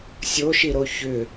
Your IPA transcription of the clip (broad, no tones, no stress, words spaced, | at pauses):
sʲoʃiɾo çʏ